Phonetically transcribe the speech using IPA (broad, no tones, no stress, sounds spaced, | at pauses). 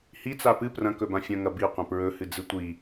h i t͡s a p ɨ p r ɐ̃ k ɵ b ã fʲ ɐ̃ ŋ ɐ b i qʷ ɐ̃ p ɹ ɵ h ɨ d͡z ɨ tʷ i